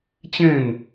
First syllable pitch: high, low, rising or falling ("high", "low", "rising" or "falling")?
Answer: falling